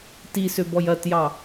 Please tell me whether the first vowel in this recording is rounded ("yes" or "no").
no